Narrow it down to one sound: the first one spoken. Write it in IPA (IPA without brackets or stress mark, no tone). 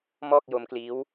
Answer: m